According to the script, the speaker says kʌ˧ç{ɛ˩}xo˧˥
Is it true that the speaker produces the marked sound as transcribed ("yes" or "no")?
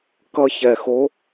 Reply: yes